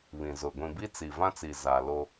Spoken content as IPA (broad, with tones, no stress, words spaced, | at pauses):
βĩ˨zʊ˨ ɡʷĩ˨bi˦ t͡si˨vã˦t͡si˨ za˨lo˦